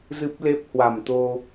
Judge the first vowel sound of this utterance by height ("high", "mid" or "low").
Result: high